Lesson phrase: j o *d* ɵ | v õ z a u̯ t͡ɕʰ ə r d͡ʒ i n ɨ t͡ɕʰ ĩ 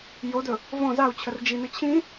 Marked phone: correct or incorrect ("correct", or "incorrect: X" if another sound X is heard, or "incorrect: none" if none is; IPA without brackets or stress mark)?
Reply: correct